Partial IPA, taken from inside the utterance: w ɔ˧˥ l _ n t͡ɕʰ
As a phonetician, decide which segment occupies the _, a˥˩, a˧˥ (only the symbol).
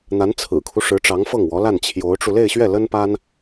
a˥˩